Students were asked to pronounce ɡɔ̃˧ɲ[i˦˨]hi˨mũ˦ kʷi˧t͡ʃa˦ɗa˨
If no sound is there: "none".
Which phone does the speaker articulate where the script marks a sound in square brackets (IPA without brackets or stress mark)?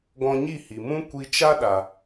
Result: i˦˨